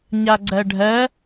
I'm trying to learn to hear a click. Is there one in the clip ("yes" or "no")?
yes